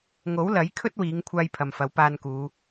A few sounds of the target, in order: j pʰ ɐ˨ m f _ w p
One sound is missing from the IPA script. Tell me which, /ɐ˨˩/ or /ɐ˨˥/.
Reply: ɐ˨˥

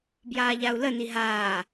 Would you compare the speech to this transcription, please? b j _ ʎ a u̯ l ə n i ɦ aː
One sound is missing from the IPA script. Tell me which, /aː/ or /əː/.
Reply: aː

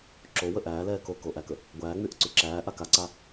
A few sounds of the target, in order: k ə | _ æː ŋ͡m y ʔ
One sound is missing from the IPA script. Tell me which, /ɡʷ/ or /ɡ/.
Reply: ɡʷ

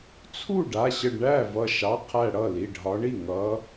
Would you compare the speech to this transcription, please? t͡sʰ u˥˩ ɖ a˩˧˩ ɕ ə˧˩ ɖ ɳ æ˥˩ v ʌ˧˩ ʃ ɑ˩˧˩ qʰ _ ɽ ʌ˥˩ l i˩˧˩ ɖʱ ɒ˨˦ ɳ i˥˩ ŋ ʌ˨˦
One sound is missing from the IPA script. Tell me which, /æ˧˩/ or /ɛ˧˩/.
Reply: æ˧˩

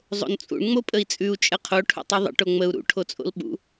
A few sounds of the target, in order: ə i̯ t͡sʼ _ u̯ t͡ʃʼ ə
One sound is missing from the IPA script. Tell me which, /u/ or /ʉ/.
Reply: ʉ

